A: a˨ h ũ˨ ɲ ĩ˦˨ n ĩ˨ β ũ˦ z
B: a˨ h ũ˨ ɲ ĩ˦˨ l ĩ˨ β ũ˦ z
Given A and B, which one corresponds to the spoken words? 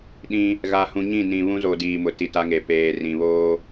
A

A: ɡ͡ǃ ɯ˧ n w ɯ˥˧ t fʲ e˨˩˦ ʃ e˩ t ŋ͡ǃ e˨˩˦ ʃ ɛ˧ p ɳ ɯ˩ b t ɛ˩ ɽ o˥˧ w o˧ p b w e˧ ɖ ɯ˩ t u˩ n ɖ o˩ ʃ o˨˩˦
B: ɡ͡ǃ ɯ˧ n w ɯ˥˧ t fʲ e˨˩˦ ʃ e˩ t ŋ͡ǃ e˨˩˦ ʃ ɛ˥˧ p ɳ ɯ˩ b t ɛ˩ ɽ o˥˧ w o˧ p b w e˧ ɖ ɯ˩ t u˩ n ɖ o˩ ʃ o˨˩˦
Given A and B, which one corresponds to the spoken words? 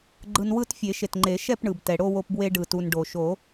B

